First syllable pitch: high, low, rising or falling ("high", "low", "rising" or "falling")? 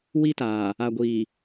high